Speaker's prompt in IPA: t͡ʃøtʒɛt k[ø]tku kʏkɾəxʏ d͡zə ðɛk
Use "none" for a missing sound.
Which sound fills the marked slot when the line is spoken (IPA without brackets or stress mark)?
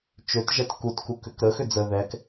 u